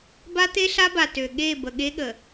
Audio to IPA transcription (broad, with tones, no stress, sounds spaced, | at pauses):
b a˦ t̪ e˦ ɬ a˦ b a˨ t ø˨ ɠ e˦˨ b ə˨ ɠ e˦ ɠ ə˨